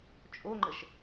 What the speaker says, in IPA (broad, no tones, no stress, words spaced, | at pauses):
t͡ʃʼoŋ͡ǃəʃ